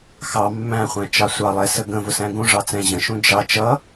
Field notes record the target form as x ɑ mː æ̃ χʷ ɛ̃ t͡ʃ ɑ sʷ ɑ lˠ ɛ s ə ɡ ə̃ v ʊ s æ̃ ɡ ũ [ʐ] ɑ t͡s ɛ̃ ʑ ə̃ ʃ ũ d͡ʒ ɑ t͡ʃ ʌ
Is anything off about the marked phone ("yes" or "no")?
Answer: no